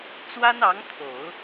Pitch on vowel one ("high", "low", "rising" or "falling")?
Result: high